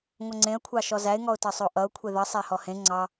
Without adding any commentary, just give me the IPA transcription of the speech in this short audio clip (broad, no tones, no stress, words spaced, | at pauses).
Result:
ŋʷʌŋ͡ǀẽə̯kʷʰɑ ʃɔzæɪ̯ŋɔʊ̯tɑ sˤoʔʌʊ̯ kʷʰeðʌ sˤæhɔhẽ ŋ͡ǀɑ